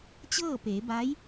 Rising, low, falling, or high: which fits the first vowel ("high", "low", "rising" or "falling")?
falling